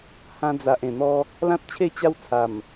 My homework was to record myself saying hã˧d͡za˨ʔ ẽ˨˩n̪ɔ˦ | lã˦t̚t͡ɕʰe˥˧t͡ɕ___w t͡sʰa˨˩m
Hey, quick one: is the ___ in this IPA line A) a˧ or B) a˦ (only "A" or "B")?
B